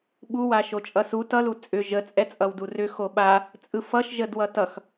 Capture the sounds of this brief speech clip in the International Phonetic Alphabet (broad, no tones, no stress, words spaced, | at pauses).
ɓuwa ʃot͡ʃʼʌsu tʌlu t͡sʼʏ ʒət͡sʼɛ t͡sʼʌwdurʏ xoɓa | t͡sʼɯfʌʃʒəd wʌtʌx